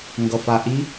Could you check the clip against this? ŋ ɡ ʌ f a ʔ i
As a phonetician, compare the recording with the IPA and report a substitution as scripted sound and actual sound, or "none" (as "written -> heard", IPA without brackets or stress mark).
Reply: none